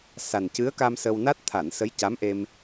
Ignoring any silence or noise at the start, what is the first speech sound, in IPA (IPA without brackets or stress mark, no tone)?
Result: s